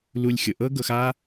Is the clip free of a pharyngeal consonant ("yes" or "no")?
yes